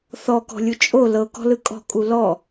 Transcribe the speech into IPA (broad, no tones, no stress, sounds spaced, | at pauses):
θ ɔ k ɔ̤ lʲ u t͡ʃʼ o l ɤ k ɔ̤ l ɯ kʼ ɔ̤ kʼ u l ɔ